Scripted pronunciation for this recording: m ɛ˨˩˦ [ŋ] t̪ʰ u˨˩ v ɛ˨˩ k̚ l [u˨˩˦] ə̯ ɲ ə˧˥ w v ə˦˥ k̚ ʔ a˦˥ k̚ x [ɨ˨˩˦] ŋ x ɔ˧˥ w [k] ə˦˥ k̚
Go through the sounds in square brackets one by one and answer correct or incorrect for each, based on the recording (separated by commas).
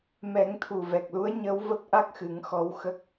correct, incorrect, correct, incorrect